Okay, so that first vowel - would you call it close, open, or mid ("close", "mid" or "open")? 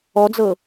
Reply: mid